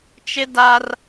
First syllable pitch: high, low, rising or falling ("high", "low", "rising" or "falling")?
high